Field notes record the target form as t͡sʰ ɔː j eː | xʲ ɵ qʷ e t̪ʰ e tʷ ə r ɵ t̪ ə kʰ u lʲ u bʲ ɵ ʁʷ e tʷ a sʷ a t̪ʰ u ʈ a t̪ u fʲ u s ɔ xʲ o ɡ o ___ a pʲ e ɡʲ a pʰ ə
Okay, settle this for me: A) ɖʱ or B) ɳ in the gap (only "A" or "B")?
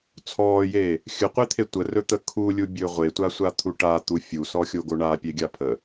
B